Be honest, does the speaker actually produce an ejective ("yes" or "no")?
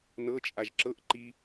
yes